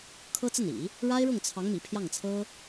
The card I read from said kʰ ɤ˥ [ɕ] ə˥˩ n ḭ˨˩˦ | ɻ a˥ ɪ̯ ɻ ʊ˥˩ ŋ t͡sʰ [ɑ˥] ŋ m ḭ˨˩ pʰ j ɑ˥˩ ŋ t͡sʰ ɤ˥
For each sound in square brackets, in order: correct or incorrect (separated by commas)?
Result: incorrect, incorrect